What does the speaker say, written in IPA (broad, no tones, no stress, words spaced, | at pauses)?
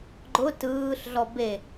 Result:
ɡ͡ǃʊ tɯːɬɮɔ be